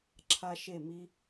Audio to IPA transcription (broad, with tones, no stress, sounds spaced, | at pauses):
ǁʰ a˦ ʃ e˦˨ m i˦